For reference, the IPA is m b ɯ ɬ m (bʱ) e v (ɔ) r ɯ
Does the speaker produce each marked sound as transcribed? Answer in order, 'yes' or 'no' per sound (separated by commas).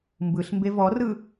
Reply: no, yes